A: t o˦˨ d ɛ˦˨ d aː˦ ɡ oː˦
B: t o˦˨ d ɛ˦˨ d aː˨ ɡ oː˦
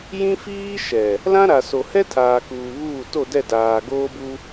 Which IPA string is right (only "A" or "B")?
B